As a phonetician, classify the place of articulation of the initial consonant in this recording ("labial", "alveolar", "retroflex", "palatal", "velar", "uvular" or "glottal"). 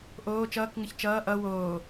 glottal